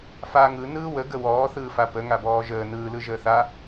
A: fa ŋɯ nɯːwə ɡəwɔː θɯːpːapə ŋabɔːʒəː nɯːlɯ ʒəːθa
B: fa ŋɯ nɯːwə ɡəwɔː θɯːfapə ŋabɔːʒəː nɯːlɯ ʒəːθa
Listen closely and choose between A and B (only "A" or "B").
B